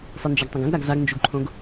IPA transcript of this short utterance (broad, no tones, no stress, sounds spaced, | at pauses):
sˤ i n d͡ʒ a ɡ tˤ ɐ̃ ɡ ɐ̃ ɡ ɾ a ɡ z a ɡ n d͡ʒ u ɡ ǃʰ õ ɡ